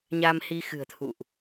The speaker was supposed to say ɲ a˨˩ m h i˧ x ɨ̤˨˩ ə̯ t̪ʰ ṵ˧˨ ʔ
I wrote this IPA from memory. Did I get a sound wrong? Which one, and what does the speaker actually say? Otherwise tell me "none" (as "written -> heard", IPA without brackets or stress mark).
a˨˩ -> a˧